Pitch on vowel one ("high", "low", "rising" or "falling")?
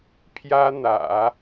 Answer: high